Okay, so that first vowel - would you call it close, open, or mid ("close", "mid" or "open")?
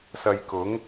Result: open